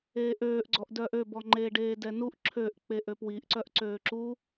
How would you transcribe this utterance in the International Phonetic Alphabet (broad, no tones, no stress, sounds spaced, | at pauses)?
eː ʔ øː ʔ ɡ͡ǀ ɔ ʔ d œː ʔ ø b ɔ ŋ͡ǃ eː ɖ eː d ɛ n u ʔ ǁʰ ø ʔ k͡p e ʔ ø p w i ʔ ǀ œ ʔ ǀ øː ǁ u